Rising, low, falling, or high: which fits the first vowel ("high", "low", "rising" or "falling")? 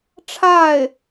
falling